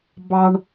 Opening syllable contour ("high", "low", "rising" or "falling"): high